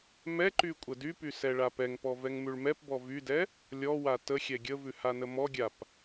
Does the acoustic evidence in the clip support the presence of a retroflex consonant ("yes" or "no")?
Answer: yes